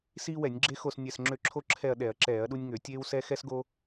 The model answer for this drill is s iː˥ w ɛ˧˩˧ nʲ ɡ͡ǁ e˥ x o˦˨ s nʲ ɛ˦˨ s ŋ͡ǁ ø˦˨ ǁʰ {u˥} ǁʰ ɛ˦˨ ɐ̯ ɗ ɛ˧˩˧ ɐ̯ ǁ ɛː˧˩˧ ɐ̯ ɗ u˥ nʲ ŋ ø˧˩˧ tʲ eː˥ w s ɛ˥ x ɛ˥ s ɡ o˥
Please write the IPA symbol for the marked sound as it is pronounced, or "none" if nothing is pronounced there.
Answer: o˥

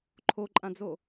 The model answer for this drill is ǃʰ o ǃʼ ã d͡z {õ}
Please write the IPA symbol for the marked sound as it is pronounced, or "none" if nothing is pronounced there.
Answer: o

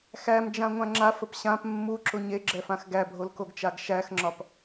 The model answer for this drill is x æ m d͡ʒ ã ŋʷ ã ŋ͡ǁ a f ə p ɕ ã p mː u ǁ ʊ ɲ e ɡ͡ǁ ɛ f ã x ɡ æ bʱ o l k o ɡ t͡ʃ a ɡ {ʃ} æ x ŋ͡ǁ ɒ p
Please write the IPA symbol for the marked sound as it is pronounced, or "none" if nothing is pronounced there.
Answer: ʃ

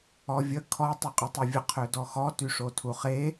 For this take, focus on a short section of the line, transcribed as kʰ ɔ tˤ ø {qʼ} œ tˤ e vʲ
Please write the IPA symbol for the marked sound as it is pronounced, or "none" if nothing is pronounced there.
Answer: qʼ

